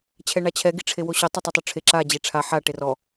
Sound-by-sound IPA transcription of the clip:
t͡ɕʰɛɳat͡ɕʰɛ ɡiʈ͡ʂʰewoɕo tˤɵtˤɛtˤoʈ͡ʂʰe ǁa d͡ʑeʈ͡ʂʰa ħa ʈerɔ

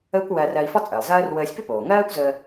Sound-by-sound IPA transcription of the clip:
əː˥kʷwɜ˧rɜ˧i̯ fɔ˥t͡sʼəː˩lˠzɜː˥r wəː˧sʲpʏ˥ poː˩ŋɜː˥kʷzəː˧

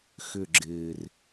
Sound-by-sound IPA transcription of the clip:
xʏ˦˨ ɡ͡ǁɪː˨˩r

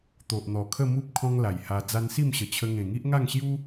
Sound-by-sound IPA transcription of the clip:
t̪o˨ʔn̪ɔ˨˩kʰə˥˧mu˦p̚ kʰɔ̃˦ŋla˨˩jha˧ d͡za˧nsi˥˧mɕə˨˩t͡ɕʰə˧ ŋẽ˨˩ŋi˦ʔŋa˥˧ŋɕju˦

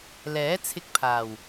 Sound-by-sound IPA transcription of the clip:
lɛː˨˥t͡sʰɪ˧k̚pʰaː˨˩w

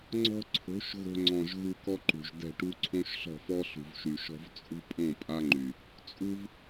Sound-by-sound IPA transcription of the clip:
ŋ͡ǀɔ̤˦ ǀʰo̤˨˦ʃ ɣo̤˧ŋ͡ǀɔ̃˨ʒ ɣu˧kɔ˦ǃṳ˨ʒ dɛ̤˦˨ʈu˦ ǀʰõ˦ʃɬɔ̤˦˨fɔ˦ ɬṳ˨vʃy˨ʃɔ̤˧v t͡sʼṳ˦pʼõ˦˨ pʼa˦ŋ͡ǃy˨ | t͡sʼu˦v

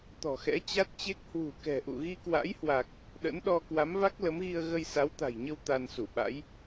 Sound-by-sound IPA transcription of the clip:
t̪ɔ̤˨˩xɛ̰˧˥ t͡ɕa˦˥t̚t͡ɕe˦˥k̚ hwṳ˨˩kɛ̤˨˩ ʔṵ˧˨ɣi˧kwa̰˧˥jhwa˨˩k̚ | ɗə̰˧˥nɗɔ˧ kwa˨˦mva˦˥k̚lə˨˦mɣi˧ə̯ ɣə˧jsa˨˦wt̪a̤˨˩jɲə˧w t̪a˧nsu˧˩ɓa̰˧˥j

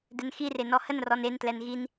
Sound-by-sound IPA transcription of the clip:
dɛnxire nɔhənrɔn entlɛn ɣin

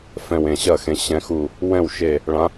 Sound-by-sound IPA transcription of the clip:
fɛ̃˧˩wẽ˧˩ɕɐ˥˩xẽ˨˦ ɕɛ̃˨˦xu˧˩ | wɛ̃˥˩wʃe˧˩ | ɭã˨˦

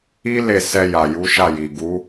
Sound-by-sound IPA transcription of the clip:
i˦ le˦˨sɛ˧ ja˨ju˨˦ʃa˦˨ji˨ ɡu˨˦

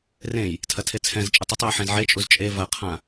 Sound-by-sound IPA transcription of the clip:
rẽj | tʰɐtʰet͡sʰɛ̃zt͡ʃʼetˤ ətˤjə ħẽzʕet͡ʃʼuz t͡ʃʼe vɐqʰã

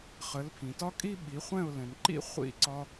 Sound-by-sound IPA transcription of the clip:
χə˩˥lpʰĩ˩tɒ˥kʼi˥ ɓi˩˥ χʷɛ̃˥˩ʊ̯lɛ̃˩nǃḭ˥ χʷḭ˥˩ǀɒ˧

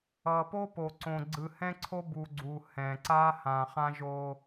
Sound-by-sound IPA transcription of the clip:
ʌ˨po˦po˨ ǀõ˨ ɡ͡ǀɯ˨hɛ̃˦ ǀʰo˦bu˨ ɡ͡ǀu˨ hɛ̃˨ǀa˦ hã˨ χã˦ʒo˦

